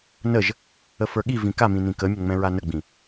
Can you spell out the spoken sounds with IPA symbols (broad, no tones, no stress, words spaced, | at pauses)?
nəʒ | əfə˞ɠivĩ kamĩ nĩkəmʲə ŋ͡mɛ̃ɹanəɡ͡bĩ